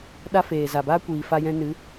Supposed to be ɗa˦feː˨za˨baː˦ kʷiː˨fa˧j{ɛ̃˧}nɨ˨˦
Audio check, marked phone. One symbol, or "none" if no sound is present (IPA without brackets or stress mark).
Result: ɛ̃˧